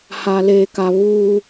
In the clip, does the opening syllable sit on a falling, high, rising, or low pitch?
high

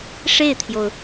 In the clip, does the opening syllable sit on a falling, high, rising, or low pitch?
falling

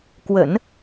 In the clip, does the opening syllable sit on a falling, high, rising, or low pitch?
low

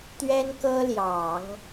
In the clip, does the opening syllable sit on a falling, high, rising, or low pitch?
high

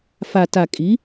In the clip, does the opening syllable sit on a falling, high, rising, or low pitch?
low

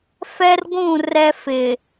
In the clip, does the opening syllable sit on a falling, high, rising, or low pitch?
high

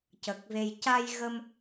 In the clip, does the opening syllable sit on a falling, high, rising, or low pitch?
low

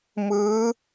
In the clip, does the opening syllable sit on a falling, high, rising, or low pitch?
rising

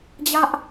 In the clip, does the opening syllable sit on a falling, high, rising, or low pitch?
high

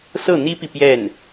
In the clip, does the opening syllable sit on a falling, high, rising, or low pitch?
falling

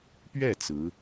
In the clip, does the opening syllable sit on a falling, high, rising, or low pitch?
falling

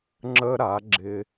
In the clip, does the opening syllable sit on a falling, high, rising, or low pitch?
high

